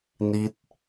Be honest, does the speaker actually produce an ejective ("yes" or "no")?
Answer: no